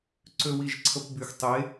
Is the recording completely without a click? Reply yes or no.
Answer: no